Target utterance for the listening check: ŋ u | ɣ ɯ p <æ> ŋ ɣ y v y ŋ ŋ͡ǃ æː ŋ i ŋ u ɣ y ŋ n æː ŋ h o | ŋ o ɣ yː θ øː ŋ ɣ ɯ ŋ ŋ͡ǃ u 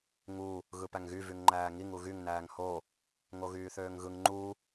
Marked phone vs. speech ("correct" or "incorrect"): correct